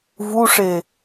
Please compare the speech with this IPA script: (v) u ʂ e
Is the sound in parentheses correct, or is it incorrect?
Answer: correct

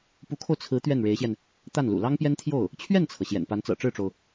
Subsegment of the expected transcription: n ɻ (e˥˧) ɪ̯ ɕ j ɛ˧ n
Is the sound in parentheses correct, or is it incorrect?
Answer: incorrect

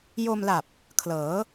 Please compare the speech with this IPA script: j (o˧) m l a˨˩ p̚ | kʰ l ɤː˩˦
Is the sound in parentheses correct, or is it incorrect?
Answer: correct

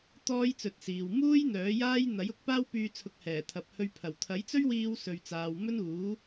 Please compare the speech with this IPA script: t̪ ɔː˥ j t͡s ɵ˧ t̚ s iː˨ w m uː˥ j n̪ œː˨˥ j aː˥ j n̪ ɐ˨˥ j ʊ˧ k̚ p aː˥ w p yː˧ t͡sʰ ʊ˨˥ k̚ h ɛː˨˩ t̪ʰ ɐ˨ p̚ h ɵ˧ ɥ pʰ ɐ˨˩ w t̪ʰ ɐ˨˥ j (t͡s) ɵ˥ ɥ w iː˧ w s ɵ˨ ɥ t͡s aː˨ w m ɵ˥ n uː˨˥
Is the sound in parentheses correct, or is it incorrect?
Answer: correct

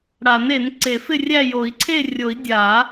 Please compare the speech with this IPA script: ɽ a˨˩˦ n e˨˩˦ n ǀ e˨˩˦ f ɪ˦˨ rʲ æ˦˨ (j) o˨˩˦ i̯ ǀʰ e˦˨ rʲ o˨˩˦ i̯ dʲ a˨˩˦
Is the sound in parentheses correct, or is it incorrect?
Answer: correct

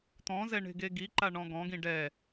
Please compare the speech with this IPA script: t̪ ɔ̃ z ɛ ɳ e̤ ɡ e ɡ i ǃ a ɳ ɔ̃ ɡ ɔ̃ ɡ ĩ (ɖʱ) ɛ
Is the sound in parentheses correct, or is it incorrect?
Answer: incorrect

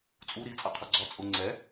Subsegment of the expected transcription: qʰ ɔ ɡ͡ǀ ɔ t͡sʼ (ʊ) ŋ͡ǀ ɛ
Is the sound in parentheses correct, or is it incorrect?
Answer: correct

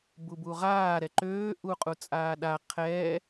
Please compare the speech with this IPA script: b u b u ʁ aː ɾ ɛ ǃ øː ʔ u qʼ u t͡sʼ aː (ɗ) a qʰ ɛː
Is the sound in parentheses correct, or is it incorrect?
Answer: correct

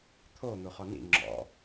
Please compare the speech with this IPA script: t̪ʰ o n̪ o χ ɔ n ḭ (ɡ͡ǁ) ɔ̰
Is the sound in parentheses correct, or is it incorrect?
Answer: incorrect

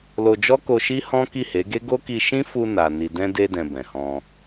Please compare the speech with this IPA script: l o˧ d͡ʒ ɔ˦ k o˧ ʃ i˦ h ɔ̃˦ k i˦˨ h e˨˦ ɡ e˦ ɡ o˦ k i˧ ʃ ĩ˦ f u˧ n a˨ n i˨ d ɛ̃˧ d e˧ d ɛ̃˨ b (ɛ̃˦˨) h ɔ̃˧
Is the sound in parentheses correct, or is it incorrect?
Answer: incorrect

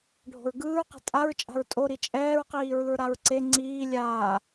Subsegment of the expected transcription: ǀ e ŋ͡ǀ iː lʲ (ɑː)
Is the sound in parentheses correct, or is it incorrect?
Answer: incorrect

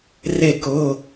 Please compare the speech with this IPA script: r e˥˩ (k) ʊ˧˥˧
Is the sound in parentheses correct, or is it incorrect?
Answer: correct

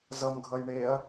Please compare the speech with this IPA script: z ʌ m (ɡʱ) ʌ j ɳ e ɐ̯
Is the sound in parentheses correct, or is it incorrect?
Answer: correct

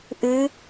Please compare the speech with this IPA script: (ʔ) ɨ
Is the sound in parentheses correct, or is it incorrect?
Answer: correct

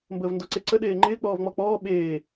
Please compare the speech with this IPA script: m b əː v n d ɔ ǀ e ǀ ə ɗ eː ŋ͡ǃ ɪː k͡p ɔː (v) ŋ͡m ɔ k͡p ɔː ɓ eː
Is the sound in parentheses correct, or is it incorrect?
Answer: correct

